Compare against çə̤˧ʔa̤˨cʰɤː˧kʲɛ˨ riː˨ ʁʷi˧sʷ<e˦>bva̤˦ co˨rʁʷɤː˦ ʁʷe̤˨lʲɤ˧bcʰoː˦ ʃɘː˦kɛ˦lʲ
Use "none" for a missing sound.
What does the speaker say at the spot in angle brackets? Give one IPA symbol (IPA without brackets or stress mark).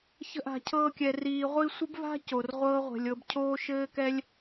ɘ˦